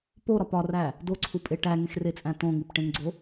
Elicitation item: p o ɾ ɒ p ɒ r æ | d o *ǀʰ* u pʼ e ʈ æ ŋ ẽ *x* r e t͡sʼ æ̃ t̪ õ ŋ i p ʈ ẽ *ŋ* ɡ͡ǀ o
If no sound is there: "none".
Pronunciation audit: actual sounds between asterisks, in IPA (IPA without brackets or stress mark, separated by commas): ǀʰ, x, ŋ